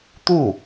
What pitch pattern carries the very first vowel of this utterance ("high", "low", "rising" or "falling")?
falling